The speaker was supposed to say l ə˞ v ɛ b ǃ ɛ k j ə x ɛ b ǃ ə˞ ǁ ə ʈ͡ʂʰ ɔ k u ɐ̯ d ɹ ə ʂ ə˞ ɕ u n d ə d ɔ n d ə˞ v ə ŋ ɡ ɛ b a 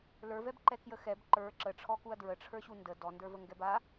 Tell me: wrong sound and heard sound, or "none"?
ʂ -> ʈ͡ʂʰ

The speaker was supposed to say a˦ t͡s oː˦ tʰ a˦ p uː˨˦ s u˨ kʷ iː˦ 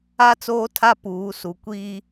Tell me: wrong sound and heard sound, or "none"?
none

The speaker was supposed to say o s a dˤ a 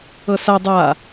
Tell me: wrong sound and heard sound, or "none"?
o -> ɤ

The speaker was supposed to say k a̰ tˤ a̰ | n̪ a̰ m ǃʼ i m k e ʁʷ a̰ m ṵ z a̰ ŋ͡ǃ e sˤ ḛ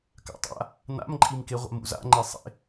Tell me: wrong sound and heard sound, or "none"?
none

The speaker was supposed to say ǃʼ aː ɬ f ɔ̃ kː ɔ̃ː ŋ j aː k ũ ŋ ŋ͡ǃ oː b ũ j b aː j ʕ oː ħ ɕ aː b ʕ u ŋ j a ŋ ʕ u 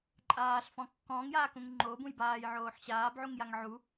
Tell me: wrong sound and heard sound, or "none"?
none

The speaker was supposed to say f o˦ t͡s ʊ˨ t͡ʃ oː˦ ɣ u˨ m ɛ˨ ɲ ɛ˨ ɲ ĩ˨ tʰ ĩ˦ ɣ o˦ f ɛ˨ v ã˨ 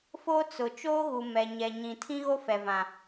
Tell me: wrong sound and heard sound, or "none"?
none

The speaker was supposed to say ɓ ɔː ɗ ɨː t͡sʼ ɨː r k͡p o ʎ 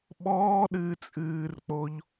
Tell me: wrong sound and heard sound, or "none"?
none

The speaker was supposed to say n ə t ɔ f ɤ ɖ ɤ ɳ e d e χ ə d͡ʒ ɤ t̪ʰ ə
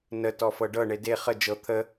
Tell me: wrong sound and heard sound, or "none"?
none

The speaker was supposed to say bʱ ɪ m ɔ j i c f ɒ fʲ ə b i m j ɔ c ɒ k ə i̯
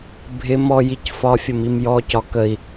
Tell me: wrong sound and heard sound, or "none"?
b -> m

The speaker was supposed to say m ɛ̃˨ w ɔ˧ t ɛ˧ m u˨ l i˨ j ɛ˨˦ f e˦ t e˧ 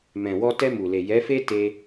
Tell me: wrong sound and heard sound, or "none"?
i˨ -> e˨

